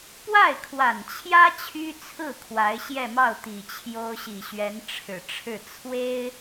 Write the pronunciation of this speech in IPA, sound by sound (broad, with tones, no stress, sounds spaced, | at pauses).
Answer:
p w a˥˩ ɪ̯ kʰ w a˨˩ n t͡ɕʰ j ä˥ t͡ɕʰ y˥ t͡sʰ ɹ̩˥˩ kʰ w a˧˥ ɪ̯ ɕ j ɛ˥˧ m ɑ˥˩ ʊ̯ t̪ i˨˩ t͡ɕʰ j o˥ ʊ̯ ɕ i˨˩ ɕ ɥ ɛ˧˥ n ʈ͡ʂʰ ɻ̩˨˩ ʈ͡ʂʰ ɻ̩˥˩ t͡sʰ w e˥ ɪ̯